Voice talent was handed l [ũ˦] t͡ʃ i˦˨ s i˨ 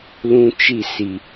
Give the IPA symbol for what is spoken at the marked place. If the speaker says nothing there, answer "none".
ũ˦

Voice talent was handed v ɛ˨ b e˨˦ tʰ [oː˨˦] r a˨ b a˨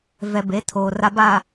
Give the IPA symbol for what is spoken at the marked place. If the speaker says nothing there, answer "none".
oː˨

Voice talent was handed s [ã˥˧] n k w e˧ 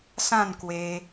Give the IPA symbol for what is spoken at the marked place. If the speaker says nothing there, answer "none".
ã˥˧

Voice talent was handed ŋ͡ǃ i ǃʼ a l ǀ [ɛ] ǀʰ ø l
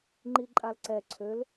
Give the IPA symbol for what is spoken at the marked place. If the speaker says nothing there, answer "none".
ɛ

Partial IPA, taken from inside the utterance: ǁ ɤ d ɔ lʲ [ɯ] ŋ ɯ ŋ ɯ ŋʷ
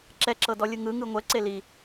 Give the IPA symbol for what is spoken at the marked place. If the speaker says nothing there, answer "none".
ɯ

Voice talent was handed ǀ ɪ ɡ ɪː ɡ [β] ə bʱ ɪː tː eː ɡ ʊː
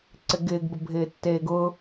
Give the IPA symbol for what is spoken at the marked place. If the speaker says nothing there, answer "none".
b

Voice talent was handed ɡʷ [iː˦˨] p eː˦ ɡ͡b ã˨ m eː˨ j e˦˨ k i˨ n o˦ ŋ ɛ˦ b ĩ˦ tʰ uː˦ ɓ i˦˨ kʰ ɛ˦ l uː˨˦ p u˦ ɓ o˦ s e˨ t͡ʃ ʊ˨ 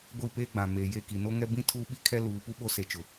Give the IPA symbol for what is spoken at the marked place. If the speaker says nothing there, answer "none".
i˦˨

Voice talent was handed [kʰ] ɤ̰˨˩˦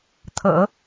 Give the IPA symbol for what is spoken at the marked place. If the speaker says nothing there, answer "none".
t̪ʰ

